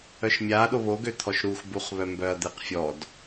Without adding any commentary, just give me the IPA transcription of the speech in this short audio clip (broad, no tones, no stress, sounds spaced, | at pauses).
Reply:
œ ʃ mʲ a ɗ o β o ɡ ø t̪ʰ ɔ ʃ ɾ u x b u χ β œ m b œ ɐ̯ d̪ e q fʲ ɔ d